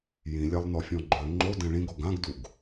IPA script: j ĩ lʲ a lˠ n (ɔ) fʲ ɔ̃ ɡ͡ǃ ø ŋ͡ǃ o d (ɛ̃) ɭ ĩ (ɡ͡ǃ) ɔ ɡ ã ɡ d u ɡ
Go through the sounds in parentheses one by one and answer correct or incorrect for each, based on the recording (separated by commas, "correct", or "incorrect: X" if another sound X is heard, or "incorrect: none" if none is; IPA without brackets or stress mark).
correct, correct, incorrect: ɡ